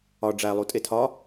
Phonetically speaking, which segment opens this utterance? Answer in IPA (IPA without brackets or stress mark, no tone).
ɒ